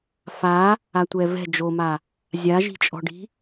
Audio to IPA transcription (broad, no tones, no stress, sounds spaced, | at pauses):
f a | a tʷ ɛ v ɛ̤ d͡ʒ o m a | zʲ a ʒ i̤ t͡ʃʼ ɔ̤ ɖ i̤